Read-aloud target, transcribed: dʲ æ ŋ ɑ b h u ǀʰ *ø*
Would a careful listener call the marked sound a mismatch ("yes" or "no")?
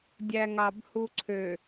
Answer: no